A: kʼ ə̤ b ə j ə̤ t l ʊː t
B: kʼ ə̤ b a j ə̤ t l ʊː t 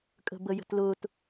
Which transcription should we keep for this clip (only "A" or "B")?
A